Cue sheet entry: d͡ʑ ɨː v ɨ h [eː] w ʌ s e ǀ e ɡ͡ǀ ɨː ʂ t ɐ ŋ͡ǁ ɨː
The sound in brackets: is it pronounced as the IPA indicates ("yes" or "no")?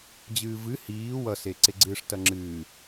no